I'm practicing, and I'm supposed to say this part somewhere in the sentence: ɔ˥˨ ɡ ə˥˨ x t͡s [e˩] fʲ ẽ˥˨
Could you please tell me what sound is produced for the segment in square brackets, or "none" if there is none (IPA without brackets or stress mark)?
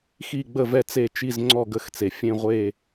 e˩